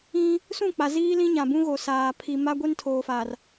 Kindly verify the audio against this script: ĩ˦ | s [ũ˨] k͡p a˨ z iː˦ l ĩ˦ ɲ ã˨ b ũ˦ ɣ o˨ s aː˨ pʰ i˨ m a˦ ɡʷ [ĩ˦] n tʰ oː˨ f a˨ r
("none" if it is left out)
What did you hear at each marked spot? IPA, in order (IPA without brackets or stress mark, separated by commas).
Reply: ũ˦˨, i˦